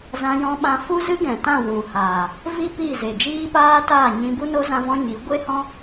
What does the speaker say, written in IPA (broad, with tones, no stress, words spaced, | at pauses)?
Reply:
zã˧jɔ̃˧ ɓã˧fu˦zɨ˦ɡɛ̃˨ tã˦˨ wũ˨haː˨ | vi˦pi˦˨ze˨ d͡ʒiː˦paː˦ taː˦˨ɲĩ˧bu˦no˦ zã˦vɔ̃˦ ɲi˨˦ ɡʷe˦hɔ̃˦